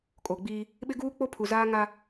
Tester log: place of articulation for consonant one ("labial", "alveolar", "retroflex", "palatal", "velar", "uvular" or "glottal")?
velar